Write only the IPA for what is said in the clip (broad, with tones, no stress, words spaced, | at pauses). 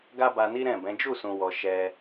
ɡa˦ba˧ni˦ ɾɛ̃˦˨bɛ̃˨˦ d͡ʒu˦˨sũ˨wɔ˨ ʃɛ˧